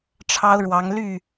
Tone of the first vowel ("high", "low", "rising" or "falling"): high